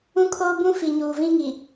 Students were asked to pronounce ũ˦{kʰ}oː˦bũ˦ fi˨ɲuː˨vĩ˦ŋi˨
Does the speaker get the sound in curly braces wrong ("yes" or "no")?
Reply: no